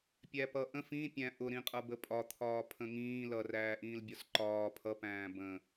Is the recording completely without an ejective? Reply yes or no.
no